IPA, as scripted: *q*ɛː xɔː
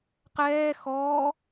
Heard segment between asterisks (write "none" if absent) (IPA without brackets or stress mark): q